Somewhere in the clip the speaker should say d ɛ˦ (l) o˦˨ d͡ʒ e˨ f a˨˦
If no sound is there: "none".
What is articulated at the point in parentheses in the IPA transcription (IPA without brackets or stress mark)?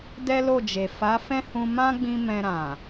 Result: l